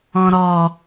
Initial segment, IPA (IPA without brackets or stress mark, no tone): ɔ̃